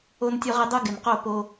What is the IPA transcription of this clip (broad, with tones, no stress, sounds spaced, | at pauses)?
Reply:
o˦ n tʲ o˦ ʁ e˦ dˤ o˦ ɡ ɪ˨ n q o˦˨ p o˦